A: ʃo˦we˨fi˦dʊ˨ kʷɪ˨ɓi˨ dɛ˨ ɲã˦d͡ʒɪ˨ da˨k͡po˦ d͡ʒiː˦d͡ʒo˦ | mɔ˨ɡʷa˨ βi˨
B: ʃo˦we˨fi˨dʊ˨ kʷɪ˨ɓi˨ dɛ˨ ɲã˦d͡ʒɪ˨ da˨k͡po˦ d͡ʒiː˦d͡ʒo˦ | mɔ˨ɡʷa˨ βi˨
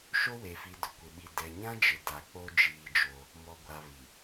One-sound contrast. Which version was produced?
B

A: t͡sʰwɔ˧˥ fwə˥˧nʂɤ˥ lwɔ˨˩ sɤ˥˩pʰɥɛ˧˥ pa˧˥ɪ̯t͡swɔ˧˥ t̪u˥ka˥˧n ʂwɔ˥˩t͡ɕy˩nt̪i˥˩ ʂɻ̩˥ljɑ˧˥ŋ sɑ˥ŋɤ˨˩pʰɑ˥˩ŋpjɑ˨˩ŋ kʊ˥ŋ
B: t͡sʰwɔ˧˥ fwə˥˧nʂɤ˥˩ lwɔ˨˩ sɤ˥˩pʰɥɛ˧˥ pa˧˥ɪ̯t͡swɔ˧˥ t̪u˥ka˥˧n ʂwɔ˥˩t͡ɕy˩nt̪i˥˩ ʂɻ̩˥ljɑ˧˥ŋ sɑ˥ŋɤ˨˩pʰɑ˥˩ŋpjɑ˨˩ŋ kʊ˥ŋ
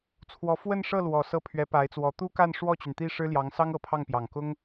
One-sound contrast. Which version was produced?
B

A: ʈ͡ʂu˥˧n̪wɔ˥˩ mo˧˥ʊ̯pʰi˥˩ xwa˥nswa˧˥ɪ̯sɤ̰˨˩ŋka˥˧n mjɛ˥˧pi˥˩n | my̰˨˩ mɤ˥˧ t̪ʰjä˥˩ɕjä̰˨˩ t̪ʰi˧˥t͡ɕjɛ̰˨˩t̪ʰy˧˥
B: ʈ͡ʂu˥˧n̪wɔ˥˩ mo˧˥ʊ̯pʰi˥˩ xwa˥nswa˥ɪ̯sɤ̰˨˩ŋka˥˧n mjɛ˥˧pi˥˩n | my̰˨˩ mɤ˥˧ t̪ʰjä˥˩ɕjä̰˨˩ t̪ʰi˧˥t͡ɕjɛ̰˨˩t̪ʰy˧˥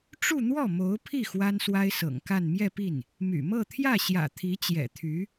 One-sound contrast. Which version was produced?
B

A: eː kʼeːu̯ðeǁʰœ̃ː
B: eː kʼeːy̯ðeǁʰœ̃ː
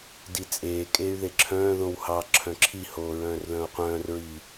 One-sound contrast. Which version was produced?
B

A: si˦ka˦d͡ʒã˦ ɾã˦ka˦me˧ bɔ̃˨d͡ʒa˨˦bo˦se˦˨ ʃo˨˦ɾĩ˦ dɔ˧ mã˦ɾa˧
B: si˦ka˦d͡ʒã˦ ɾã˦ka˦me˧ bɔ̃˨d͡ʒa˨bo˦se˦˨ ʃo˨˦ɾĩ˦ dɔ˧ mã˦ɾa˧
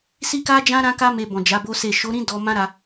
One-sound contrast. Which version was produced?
A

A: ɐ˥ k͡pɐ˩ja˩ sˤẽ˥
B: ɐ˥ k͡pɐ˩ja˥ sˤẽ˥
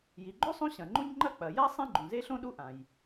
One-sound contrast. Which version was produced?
B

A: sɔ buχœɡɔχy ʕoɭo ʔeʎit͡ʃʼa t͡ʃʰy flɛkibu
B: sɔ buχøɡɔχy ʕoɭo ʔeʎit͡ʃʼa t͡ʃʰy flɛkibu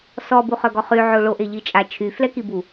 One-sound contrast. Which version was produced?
A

